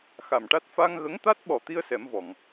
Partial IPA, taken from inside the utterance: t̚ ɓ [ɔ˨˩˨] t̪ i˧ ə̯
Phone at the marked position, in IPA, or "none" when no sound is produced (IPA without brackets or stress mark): ɔ˨˩